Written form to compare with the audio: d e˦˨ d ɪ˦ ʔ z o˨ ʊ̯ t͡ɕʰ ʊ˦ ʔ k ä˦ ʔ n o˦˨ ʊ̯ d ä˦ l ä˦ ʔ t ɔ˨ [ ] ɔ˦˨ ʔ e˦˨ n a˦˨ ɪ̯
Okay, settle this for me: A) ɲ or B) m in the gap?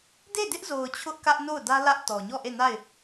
A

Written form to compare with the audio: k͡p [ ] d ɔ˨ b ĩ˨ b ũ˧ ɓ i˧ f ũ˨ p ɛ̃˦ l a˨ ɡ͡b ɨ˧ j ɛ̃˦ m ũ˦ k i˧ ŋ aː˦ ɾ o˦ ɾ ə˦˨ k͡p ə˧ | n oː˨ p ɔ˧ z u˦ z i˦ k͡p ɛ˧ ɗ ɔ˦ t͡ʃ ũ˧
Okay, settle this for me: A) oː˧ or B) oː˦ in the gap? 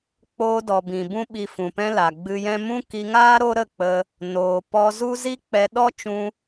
A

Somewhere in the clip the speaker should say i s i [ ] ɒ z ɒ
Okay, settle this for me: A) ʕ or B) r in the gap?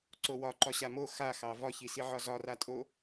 A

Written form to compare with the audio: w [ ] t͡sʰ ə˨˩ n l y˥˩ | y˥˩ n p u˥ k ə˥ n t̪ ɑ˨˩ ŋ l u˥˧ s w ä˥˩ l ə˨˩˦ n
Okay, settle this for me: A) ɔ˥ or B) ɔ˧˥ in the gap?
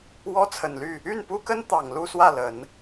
A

